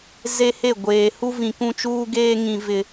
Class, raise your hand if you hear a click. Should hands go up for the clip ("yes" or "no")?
no